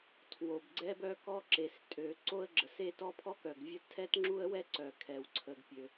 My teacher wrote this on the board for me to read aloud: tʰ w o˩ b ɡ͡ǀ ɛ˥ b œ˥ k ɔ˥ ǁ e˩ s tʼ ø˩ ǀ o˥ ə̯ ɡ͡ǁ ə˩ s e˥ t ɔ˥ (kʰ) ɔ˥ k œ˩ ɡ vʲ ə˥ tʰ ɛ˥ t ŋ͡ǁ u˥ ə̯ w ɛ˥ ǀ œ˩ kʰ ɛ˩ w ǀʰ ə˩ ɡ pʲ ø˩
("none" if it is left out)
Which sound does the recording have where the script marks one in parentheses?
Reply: pʰ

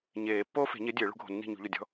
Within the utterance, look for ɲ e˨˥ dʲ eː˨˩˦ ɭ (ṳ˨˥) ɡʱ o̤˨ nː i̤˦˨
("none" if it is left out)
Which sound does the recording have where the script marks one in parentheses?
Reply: ṳ˨˥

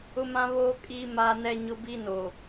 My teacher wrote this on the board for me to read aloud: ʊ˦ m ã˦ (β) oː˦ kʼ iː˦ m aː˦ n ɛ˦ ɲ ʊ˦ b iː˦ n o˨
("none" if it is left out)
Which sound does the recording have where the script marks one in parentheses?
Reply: β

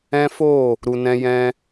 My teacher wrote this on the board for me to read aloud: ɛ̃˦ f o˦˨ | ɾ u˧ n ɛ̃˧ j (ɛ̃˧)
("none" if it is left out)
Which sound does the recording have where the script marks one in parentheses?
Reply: ɛ̃˧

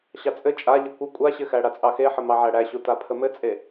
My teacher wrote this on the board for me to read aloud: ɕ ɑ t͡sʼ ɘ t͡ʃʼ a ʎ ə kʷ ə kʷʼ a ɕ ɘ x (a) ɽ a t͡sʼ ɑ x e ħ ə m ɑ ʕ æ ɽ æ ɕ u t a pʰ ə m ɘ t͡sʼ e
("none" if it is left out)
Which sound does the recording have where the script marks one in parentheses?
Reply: æ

